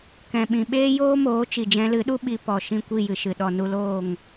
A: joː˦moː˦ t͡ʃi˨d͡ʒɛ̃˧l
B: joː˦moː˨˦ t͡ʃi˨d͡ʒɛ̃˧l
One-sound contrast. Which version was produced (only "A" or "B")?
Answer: B